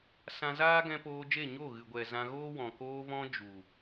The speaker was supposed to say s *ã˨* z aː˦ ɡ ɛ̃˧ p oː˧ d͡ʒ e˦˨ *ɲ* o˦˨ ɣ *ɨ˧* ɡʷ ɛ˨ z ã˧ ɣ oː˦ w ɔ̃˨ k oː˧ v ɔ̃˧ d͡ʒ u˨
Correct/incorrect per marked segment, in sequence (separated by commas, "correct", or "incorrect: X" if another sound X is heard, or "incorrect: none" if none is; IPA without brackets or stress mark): incorrect: ã˧, correct, incorrect: ɨ˨